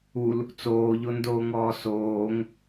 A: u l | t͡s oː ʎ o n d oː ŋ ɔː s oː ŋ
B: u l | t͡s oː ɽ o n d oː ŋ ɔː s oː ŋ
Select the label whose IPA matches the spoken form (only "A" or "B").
A